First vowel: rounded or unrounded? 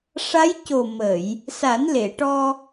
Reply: unrounded